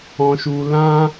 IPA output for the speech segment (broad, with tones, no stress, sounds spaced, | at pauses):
ɔ̃˧ ʃ u˧ l ã˦